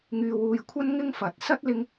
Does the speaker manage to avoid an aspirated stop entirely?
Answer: no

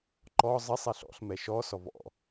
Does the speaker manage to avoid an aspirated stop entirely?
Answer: yes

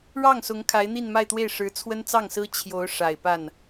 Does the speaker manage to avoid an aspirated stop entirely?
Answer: no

